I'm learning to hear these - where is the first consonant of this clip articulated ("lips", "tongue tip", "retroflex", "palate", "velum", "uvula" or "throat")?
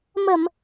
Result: lips